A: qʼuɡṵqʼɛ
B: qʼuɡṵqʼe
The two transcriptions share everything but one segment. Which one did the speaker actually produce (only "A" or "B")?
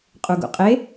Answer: B